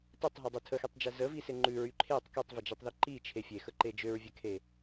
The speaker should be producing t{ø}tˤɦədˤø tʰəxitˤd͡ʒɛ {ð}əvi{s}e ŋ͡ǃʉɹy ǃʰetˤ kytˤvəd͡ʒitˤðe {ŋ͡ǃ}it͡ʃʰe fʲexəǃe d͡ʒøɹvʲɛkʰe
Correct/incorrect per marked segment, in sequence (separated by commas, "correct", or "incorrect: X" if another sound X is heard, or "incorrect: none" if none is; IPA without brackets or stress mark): incorrect: ə, incorrect: z, correct, incorrect: ǃ